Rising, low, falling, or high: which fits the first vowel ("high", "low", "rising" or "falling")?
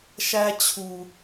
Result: high